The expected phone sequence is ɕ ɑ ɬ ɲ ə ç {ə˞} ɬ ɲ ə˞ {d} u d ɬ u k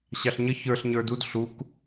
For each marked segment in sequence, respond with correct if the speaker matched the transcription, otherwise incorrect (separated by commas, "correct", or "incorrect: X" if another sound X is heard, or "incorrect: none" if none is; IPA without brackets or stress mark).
correct, correct